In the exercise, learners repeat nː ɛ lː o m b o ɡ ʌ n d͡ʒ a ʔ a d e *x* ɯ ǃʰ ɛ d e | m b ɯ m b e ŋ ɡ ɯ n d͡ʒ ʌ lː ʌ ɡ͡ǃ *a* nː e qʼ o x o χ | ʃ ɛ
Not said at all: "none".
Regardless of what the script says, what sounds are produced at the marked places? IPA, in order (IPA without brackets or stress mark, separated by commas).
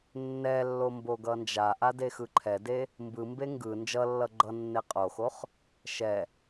x, ʌ